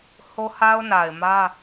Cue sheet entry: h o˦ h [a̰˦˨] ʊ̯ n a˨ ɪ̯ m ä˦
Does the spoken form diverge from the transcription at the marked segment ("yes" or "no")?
yes